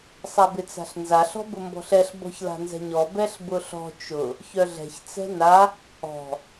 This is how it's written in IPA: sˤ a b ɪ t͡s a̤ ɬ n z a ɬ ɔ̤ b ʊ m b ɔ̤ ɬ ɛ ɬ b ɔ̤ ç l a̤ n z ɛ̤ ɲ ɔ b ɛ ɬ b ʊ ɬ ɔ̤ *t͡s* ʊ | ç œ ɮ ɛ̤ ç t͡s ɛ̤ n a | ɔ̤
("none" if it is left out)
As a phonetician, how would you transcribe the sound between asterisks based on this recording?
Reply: t͡ʃ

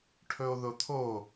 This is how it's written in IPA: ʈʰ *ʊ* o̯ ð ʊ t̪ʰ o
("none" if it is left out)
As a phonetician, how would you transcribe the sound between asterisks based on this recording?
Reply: ɵ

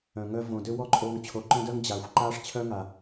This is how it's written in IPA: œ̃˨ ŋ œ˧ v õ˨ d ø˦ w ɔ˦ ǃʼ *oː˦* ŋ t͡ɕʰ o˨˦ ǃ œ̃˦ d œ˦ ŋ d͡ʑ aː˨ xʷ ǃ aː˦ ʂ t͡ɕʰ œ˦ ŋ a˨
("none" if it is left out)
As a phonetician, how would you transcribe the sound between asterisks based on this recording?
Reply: oː˧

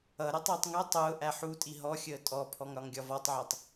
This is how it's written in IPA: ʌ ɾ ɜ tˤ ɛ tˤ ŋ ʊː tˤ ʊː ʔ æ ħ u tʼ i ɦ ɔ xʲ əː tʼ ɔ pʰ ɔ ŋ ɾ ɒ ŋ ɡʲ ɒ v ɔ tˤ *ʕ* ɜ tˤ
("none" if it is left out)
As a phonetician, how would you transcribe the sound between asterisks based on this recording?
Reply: ʕ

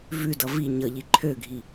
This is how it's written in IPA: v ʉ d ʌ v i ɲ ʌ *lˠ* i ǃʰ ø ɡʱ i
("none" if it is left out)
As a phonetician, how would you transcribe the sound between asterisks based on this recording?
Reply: ʎ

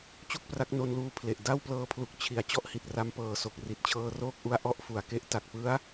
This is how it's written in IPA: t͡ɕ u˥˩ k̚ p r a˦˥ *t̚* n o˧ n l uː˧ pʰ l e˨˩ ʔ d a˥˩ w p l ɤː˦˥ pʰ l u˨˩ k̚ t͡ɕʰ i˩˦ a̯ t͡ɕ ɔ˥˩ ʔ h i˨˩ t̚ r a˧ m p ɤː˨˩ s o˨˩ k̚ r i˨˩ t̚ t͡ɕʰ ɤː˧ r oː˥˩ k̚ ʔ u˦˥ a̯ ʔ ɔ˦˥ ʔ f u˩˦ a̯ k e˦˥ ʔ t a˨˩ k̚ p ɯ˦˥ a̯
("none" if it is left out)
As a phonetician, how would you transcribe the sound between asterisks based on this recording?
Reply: k̚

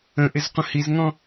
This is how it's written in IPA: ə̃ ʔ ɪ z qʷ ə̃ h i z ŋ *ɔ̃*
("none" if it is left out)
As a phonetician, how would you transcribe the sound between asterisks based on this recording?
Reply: ɔ̃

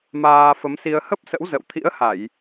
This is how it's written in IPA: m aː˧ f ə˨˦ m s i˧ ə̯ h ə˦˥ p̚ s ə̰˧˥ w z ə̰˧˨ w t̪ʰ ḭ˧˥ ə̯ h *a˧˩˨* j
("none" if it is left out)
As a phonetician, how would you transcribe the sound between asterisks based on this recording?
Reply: a˧˩˨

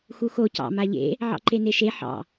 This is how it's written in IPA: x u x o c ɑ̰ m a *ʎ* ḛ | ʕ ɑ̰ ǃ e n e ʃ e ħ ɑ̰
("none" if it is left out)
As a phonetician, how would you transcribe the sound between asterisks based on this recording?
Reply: ʎ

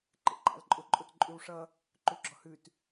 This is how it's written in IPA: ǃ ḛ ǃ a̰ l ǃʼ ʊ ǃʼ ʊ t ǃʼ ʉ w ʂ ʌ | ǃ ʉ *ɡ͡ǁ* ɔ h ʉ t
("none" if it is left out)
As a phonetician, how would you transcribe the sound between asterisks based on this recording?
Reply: ɡ͡ǁ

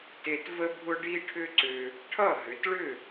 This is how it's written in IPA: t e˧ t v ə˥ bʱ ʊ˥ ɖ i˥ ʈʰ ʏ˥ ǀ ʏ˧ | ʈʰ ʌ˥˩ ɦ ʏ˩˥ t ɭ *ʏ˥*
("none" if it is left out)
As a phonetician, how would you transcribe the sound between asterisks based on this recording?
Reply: ʏ˥˩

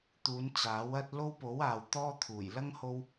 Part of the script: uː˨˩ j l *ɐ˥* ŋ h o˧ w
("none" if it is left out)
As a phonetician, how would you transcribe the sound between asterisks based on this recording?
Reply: ɐ˥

